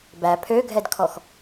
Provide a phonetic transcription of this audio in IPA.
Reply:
bæ pʰøɡʱɛdkʰɔx

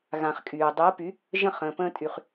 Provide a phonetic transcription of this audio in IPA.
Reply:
ɣã˩χkʼyː˩ dˤy˩˥ə̯py˩˥ | ʒə̃˥˩χ ə̃ː˩pə̃ː˧tʼy˩χ

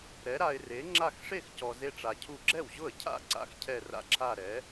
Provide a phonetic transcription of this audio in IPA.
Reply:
ɾɛ˨˥ɾa˧ɪ̯re˨˥ŋ͡ǁa˥˧x ʂe˥˩x cɔ˧ze˥˧ʈ͡ʂa˧cʰu˥˩ ɡ͡ǁɛ˥˩wʑʊ˥˩ə̯cʰa̰˥˩ ǀa̰˥˧xcʰɛ˥˧ra̰˥˩ǁʰa˥˧ ɾɛ˨˥

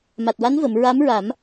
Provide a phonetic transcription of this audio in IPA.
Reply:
ma˨˩t̚wa˧˥nvə˨˩˨m ɹa˧˥mɹa˨˩˦m

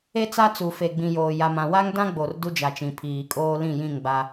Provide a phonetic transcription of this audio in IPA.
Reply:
e˦t͡sa˦t͡su˨ fe˨ɡ͡bĩ˨joː˨ ja˨mã˨ wa˦ŋdã˦ ɡ͡bo˨rdu˦ d͡ʒa˨t͡ʃĩ˨ pʰiː˨kʼoː˦ lĩ˦˨jĩ˦˨ŋɡ͡ba˦

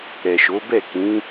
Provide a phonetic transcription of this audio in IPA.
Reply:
ɾɛ˨ʃo˨˦bɛ˦˨ kĩ˨˦

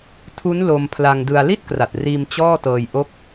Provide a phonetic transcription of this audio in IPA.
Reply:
tʰu˦˥n lo˧m pʰla˧ŋdɯ˧a̯ li˥˩t̚kra˨˩t̚riː˧m t͡ɕɔː˥˩tɤː˧jʔo˦˥k̚

